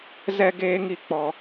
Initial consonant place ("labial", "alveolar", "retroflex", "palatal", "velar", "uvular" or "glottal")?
alveolar